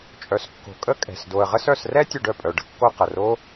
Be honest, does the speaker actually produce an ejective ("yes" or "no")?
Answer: yes